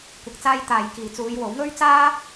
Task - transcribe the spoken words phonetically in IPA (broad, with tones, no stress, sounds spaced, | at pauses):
kʷ ɐ˨ k̚ t͡s aː˧ j t̪ aː˨ j k iː˨ t͡s uː˨˧ j w o˨˥ w ŋ ɵ˥ ɥ t͡s aː˥